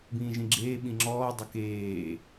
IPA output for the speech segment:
b ĩː ʒ ĩ ɡ͡ǁ eː ɓ ĩ ŋ͡ǁ ɔː dˤ ə k eː

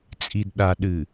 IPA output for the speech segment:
t͡sʼ i˨ d ɗ a˨ ɗ ɨ˨

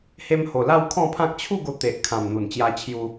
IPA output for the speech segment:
h e˧ m h o˨˩ l a˥˧ w kʰ ɔ̃˥˧ pʰ ã˦ k̚ t͡ɕʰ u˥˧ ɡ o˧ t̪ e˨ ʔ kʰ ã˨˩ m n̪ u˨˩ n t͡ɕ j a˧ t͡ɕʰ j u˧

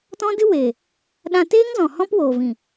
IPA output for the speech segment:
t ɔ̃˦ d ɨ˦ w e˨ | ɗ ã˧ t eː˦ ŋ z ɔ̃˨ h ɔ̃˦ p w oː˨ v ĩ˨

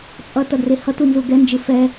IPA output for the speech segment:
t͡sʼ ʌ t ʌ d r e h ʌ t u n z u ɡ ɛ n d͡ʒ ɯ f ɛ

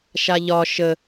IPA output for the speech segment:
ʃ a ʎ ɒ ʃ ə

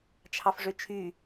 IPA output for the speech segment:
t͡ʃʰ ɑ f ʐ ø t͡ʃʰ y

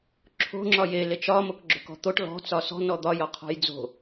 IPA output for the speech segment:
ǁʰ o̤ ŋ͡ǁ ɒ j e l e t͡ʃ ɒ m o k ɡ͡ǁ o̤ k ɔ̤ t̪ o ʈ l ɔ̤ t͡s ɒ s ɔ̤ n ɔ d̪ ɒ j ɒ qʰ ɔ̤ j d͡z o̤

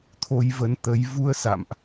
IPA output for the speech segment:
t̪ʰ o˧ j v ə˨˦ n t̪ ə˨˦ j v u˧ ə̯ s a̰˧˨ m ʔ

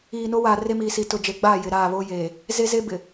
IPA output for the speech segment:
iː˨ n o˦ w aː˨ r e˦ m iː˨ s i˨ t ʊ˨ d͡ʒ e˨ ɡ͡b aː˦˨ j ɪ˨ ɾ aː˦˨ β oː˦ j eː˨ | z e˦ z e˦ b ɪ˨

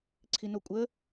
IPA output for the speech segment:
ǀʰ i n o kʷʼ ə

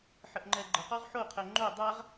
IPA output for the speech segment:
ħ ə ʔ ŋ͡ǃ ɛ ɡ͡ǃ ə q ɔ ʁ ħ o qʰ ɛ ŋ͡ǃ o dˤ a ʁ

